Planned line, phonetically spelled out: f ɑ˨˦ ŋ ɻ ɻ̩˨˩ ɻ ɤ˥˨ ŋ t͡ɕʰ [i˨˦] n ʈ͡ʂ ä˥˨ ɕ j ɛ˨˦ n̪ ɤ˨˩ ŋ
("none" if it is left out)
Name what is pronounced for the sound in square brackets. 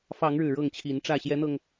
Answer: i˨˦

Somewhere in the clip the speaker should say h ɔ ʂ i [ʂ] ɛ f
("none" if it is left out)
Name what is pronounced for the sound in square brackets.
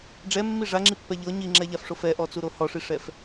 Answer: ʂ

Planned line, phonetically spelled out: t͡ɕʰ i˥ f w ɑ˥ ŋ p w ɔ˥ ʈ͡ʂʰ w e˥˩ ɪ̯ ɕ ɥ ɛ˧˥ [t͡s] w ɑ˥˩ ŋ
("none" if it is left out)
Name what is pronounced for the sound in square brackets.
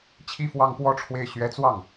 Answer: t͡s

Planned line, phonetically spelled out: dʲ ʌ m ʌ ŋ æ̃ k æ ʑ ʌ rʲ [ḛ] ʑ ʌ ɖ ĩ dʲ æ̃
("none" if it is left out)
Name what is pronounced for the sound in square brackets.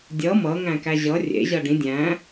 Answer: ḛ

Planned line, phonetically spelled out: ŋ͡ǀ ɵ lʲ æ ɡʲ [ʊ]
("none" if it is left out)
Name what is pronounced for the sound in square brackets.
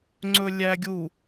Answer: u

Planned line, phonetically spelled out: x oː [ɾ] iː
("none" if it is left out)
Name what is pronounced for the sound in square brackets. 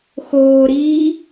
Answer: ɾ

